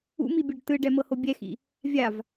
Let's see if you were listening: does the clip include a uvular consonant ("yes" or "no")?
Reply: no